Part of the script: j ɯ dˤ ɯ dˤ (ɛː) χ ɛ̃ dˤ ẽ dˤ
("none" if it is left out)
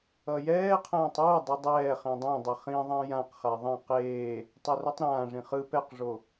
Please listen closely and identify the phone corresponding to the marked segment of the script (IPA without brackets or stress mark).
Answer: ɛː